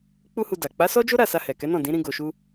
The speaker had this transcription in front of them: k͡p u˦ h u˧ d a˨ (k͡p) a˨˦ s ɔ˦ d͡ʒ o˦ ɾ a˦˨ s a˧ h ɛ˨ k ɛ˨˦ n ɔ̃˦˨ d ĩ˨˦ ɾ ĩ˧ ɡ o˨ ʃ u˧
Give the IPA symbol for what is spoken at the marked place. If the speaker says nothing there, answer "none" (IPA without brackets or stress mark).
k͡p